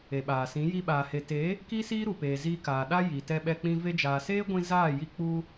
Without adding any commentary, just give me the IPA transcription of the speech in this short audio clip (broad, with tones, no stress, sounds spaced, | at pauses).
e˨ ɓ aː˨ s ĩ˨˦ j i˧ ɓ aː˨ h e˨ t e˨˦ | k i˦ s iː˦ ɾ u˨ p eː˨ z iː˧ k aː˨ ɗ a˦ j i˨ t ɛ˧ ɓ ɛ˧ k͡p ĩ˧ v e˧ d͡ʒ aː˨ s eː˦ ɡʷ ĩ˧ z aː˦˨ j i˦ k͡p u˧